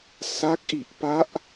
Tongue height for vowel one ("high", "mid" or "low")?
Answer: low